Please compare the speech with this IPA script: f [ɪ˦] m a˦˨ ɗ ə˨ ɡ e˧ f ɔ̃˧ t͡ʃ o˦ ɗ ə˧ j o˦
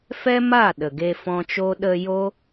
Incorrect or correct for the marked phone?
incorrect: ɛ˦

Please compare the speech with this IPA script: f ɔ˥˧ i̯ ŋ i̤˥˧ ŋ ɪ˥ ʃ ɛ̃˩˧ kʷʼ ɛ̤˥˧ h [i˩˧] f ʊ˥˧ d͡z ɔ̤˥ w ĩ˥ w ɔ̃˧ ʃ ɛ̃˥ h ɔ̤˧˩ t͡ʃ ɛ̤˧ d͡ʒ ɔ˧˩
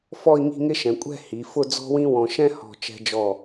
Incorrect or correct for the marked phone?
correct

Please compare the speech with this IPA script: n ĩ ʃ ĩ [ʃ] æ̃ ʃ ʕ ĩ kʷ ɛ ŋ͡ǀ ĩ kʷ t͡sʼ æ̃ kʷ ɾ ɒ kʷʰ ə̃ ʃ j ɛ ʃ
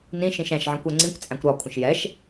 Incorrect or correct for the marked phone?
correct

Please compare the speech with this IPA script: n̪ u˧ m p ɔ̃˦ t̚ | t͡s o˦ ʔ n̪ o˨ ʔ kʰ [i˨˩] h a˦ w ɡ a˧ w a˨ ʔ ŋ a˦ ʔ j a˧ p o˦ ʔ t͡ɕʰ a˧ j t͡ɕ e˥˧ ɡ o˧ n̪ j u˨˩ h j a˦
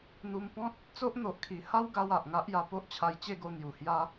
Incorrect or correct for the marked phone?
correct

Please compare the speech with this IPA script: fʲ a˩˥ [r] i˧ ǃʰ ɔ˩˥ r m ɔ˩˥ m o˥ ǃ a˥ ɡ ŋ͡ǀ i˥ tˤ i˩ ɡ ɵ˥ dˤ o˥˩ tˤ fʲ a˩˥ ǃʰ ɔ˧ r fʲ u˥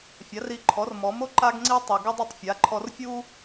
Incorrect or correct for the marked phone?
correct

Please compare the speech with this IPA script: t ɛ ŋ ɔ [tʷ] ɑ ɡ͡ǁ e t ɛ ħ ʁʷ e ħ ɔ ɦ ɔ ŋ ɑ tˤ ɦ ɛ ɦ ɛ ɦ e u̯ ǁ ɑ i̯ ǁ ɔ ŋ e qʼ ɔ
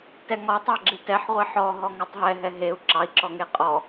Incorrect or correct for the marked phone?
incorrect: tˤ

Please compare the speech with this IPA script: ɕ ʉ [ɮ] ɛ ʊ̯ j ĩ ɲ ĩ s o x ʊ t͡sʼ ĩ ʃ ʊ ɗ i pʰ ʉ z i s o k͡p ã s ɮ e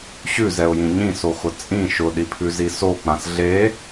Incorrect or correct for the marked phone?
incorrect: z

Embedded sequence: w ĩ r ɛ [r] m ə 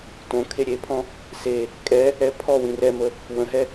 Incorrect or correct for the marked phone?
incorrect: none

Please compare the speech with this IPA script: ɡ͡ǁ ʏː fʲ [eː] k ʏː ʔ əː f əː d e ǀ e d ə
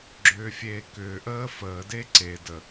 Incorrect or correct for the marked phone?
correct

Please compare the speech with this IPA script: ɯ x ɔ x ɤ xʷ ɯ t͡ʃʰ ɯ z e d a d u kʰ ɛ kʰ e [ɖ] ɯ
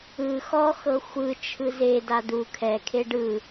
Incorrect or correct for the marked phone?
correct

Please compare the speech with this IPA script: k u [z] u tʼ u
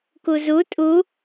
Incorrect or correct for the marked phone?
correct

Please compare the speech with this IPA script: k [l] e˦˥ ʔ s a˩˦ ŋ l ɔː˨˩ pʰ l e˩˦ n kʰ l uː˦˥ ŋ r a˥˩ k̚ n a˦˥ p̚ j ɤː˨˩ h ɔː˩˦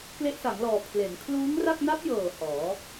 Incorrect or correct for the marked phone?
correct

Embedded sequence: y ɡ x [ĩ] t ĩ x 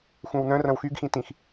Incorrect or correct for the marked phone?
correct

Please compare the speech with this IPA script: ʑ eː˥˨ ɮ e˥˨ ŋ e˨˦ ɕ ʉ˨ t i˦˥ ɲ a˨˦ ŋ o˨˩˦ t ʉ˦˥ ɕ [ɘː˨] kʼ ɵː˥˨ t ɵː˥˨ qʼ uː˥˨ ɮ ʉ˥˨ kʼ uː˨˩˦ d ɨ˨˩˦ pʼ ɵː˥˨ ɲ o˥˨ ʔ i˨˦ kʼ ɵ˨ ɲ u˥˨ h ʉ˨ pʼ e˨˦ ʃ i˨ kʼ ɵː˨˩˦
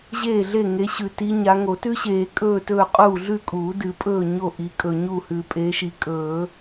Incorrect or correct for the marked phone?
incorrect: eː˨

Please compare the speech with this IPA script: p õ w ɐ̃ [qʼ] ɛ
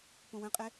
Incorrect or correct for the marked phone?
correct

